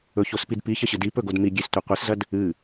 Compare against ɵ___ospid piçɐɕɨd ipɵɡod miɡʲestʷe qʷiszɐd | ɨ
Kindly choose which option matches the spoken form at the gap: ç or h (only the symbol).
ç